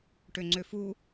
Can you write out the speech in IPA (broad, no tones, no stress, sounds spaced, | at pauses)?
ʈ ø ŋ͡ǀ ø f u